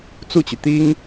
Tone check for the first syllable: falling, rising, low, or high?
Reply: falling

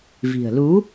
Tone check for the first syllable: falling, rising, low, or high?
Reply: low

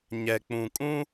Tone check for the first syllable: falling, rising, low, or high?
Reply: low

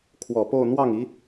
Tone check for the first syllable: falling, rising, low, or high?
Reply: low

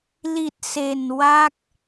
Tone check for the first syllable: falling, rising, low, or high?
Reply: low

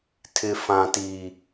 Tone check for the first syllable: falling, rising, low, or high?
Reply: high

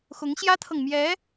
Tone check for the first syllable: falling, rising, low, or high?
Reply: rising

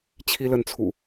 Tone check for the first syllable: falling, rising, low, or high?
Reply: high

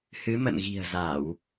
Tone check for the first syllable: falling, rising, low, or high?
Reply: rising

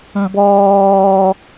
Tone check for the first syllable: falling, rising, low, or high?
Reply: high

